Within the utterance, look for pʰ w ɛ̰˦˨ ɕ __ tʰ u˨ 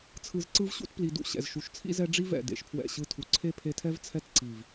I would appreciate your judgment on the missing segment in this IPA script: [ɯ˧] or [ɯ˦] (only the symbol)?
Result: ɯ˦